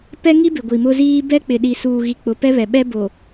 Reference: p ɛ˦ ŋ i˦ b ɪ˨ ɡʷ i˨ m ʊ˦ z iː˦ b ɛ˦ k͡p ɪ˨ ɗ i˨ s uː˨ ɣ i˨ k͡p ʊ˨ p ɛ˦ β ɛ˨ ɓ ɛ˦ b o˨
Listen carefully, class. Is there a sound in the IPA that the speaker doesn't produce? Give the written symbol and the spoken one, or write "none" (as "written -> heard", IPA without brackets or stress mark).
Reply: none